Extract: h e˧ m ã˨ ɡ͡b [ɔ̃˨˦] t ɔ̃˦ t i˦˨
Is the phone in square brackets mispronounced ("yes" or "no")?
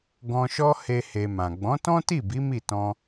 no